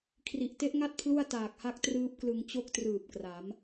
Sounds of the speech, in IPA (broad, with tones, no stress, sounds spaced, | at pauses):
kʰ r i˨˩ ʔ t e˦˥ ʔ ŋ a˦˥ t̚ pʰ l u˥˩ a̯ t aː˨˩ k̚ h a˦˥ k̚ t r ɯː˦˥ p̚ k l ɯ˧ ŋ t͡ɕ o˥˩ k̚ t r ɯː˨˩ p̚ k r a˩˦ m